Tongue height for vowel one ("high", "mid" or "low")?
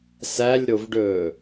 low